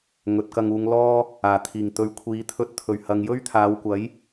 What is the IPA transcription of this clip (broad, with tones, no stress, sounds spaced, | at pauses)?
ŋ ɵ˨˥ t̚ k ɐ˧ ŋ uː˨˧ ŋ l ɔː˥ | aː˨˩ t̪ʰ iː˨˩ ŋ t̪ ɵ˨˥ ɥ kʷʰ iː˨˥ t̪ʰ ɵ˧ t̚ t̪ʰ ɵ˨˩ ɥ h ɐ˨ ŋ j ɵ˥ ɥ t̪ʰ aː˨˧ w kʷ ɐ˨˥ j